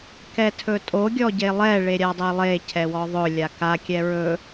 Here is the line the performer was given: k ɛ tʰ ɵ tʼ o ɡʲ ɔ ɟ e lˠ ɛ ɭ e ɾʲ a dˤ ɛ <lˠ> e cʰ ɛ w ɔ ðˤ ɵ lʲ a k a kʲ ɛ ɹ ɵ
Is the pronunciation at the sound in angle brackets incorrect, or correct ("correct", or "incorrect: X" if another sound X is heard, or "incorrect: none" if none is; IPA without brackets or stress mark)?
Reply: correct